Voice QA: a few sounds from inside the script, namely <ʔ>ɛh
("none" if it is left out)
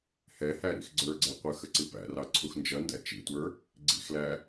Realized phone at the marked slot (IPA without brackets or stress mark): h